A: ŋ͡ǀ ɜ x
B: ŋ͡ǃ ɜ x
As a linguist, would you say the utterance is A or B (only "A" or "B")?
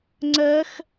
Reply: A